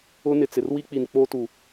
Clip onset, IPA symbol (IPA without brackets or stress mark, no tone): ʊ